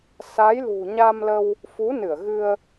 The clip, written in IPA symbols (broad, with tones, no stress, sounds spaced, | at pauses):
s a˨˦ j l ṳ˨˩ ɲ a˧ m l ə˧ w | f u˨˦ n ɨ˧˩ ə̯ ɣ ɨ˧ ə̯